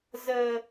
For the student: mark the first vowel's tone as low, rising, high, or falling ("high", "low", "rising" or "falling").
high